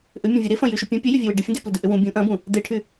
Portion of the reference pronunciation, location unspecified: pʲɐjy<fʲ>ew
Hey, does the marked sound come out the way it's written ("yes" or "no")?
no